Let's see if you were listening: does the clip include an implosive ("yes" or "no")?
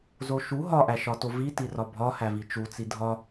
no